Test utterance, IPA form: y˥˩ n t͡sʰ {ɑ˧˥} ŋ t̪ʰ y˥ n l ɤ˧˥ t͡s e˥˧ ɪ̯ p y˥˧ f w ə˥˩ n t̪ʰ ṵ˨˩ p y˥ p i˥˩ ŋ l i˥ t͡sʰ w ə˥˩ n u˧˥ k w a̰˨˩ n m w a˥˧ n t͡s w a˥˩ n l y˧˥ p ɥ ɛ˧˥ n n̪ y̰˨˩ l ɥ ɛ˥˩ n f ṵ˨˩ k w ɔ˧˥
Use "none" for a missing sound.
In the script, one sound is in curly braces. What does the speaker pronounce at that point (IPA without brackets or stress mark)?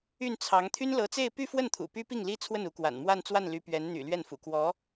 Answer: ɑ˧˥